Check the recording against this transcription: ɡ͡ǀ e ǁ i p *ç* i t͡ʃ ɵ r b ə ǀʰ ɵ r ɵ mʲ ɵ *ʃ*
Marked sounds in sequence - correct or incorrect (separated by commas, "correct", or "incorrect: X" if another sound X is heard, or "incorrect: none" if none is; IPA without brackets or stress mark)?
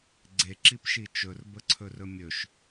incorrect: ʃ, correct